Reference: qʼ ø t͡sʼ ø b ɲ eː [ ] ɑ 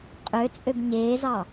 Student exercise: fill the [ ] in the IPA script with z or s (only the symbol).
z